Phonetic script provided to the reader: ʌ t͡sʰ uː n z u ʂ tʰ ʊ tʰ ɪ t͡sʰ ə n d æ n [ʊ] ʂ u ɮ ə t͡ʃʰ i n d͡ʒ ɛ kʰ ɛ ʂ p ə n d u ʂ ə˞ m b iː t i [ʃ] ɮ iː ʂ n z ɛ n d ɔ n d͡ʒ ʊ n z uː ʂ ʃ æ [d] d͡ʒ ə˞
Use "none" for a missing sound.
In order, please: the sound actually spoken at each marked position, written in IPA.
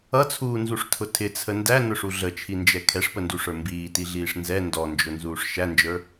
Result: ʊ, none, n

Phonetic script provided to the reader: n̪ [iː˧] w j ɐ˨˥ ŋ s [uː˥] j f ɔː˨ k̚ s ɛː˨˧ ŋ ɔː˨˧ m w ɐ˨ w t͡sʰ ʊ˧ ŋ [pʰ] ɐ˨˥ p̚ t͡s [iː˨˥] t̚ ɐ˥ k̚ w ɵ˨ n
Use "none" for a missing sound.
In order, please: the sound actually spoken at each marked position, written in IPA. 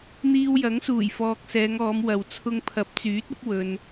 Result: iː˧, uː˨˩, pʰ, yː˨˥

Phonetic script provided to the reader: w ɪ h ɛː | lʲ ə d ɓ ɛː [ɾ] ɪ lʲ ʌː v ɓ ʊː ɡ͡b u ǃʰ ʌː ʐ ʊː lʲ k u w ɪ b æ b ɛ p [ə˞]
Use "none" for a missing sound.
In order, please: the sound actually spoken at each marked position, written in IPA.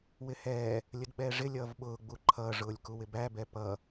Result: ʐ, ʌ

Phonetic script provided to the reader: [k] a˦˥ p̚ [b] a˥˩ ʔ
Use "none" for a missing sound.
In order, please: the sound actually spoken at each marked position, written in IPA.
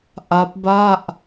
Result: ʔ, b

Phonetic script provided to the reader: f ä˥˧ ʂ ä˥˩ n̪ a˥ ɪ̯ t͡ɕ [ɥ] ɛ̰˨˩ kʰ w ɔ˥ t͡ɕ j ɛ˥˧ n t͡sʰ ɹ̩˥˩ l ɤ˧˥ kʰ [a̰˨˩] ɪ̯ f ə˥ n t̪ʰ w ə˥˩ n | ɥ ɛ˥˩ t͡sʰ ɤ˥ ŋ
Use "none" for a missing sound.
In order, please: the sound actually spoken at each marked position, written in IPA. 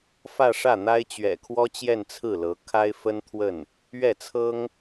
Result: ɥ, a˥

